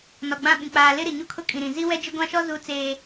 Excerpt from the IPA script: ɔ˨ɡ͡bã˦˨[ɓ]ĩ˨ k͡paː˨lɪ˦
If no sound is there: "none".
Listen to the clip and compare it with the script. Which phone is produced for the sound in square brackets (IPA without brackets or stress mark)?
ɓ